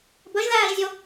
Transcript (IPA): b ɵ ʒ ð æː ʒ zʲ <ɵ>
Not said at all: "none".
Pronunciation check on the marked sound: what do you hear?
o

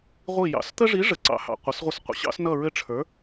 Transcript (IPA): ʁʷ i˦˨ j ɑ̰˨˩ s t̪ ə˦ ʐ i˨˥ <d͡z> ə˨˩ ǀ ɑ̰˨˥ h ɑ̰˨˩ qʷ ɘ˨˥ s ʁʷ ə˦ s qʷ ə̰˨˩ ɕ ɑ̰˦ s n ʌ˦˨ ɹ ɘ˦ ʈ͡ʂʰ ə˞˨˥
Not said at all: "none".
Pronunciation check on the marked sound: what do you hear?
ʐ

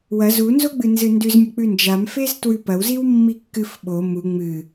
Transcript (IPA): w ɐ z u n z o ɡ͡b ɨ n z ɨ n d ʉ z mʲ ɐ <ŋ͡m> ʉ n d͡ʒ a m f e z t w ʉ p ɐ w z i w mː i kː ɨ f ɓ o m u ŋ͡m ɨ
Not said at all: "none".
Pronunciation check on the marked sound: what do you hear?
k͡p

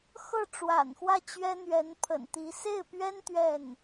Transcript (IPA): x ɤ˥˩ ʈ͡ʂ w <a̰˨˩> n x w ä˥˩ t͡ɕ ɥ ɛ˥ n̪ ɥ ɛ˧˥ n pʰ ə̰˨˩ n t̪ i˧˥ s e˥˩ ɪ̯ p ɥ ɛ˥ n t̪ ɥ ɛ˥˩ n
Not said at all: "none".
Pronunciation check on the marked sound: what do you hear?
a̰˨˩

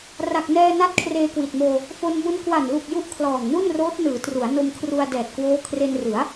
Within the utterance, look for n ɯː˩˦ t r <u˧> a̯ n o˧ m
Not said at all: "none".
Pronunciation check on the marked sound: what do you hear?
u˩˦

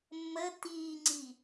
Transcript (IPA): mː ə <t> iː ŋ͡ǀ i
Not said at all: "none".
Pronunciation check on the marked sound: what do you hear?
t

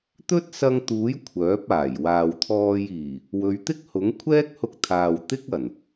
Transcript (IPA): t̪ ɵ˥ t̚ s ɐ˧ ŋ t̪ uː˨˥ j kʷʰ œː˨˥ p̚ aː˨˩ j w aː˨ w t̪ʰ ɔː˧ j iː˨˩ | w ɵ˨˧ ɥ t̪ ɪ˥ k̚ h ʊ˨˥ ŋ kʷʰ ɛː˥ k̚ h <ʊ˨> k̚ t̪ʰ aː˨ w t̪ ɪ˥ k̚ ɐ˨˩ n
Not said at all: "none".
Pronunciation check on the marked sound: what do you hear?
ʊ˧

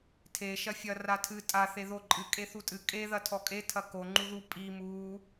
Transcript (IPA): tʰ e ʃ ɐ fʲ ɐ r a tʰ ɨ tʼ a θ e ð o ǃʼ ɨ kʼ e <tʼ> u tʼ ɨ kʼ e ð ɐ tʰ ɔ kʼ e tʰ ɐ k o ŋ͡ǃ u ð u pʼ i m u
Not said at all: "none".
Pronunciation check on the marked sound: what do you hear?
θ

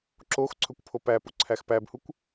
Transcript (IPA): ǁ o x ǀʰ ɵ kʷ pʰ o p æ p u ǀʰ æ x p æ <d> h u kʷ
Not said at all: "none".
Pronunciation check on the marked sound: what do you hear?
b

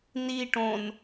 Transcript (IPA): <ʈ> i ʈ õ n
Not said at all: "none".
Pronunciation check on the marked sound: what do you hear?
n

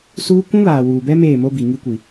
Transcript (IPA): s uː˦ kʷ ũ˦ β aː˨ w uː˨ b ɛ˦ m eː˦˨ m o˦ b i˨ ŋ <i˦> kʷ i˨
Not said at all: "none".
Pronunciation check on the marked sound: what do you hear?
i˦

